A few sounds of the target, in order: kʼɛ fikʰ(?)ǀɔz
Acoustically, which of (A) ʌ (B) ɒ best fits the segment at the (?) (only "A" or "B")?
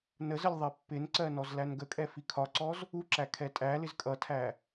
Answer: B